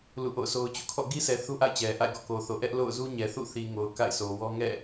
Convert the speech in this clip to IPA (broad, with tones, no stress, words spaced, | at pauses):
lṵ˦˨ʔo̰˦˨ʊ̯sʰo˦ʊ̯t͡ɕṵ˦˨ kʰɔ̰˦˨ ɡi˦sʰɛ˨ θu˦ʔa̰˦˨ɪ̯t͡ɕɛ˨ ʔa̰˦˨ɪ̯ɡɔ̰˦˨ko˨θo˨ ʔɛ˦ʔlo̰˦˨ʊ̯zu˦ ɲɛ˨θṵ˦˨θi˨ŋo˨ʊ̯ ka̰˦˨ɪ̯sʰo˨wɔ˦ ŋɛ̰˦˨